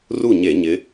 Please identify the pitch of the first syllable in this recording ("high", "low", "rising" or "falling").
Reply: falling